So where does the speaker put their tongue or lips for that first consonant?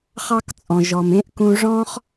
uvula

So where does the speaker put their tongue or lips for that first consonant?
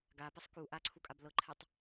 velum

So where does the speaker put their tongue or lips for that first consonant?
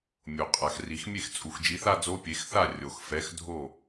lips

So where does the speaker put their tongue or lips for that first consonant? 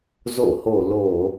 tongue tip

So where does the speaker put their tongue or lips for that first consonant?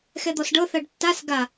velum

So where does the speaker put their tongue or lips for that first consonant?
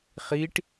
uvula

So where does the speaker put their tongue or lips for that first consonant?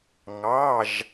velum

